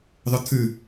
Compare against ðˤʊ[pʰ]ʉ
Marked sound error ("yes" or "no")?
yes